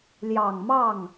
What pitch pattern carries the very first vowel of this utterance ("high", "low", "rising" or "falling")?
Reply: low